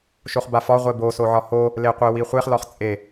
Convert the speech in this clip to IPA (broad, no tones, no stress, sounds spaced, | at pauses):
ʃ o χ b a f ɒ ʁʷ e b o s o ʕ ɒ h o | l e qʷ e w i χʷ e χ l ɒ χ t͡sʼ e